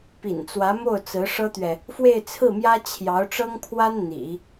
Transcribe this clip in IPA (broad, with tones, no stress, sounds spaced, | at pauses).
p ḭ˨˩ n t͡s w ä˧˥ m o˥˩ ʊ̯ t͡s ɹ̩˧˥ ʂ ɤ˥ t̪ ɥ ɛ˨ | f w e˥˧ ɪ̯ t͡sʰ ɹ̩˥˩ m j ä˥ t͡ɕʰ j ɑ˧˥ ʊ̯ ʈ͡ʂ ɤ˥ ŋ pʰ w a˥ n n̪ ḭ˨˩˦